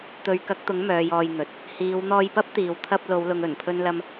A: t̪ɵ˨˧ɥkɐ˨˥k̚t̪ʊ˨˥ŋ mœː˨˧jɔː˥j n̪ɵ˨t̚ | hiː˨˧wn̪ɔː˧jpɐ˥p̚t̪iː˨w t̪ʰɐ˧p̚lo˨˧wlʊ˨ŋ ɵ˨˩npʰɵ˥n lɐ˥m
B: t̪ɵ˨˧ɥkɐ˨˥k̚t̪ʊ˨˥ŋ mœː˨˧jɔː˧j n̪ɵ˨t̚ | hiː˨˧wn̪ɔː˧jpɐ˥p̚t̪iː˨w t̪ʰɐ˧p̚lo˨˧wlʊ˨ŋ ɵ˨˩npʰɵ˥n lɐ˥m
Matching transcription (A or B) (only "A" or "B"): B